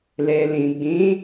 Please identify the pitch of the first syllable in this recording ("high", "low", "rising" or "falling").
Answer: low